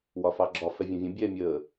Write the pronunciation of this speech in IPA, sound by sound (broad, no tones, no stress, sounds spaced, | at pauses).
w ɒ f ɑ ɡ͡ǁ ɒ f ɛ vʲ ũ vʲ ə̃ bʲ ɛː mʲ əː